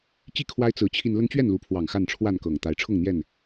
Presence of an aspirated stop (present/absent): present